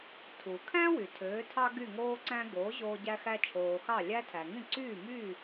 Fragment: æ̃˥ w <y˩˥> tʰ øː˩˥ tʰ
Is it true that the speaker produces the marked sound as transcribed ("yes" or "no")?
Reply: no